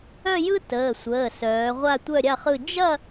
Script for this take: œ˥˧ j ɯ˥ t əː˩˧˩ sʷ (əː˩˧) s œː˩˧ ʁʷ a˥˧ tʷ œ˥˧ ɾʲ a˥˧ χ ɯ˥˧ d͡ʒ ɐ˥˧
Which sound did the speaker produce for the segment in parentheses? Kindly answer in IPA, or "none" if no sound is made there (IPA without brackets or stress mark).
əː˩˧˩